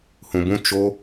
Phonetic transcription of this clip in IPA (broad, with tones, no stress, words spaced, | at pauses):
hũ˧bũ˦ t͡ʃo˦